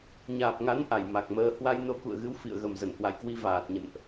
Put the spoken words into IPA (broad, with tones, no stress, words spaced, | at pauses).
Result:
ɲaː˨˩p̚ŋa˨˦n ʔa˧˩jma˨˩k̚məː˧ hwa˧jno˧ kṵ˧˨ə̯ɣɨ˨˦w fḭ˧˨ə̯ ɣə˨˩mzə˧˩nhwa̰˧˨jkwi˧ vaː˨˩t̚ɲə̰˧˨nʔ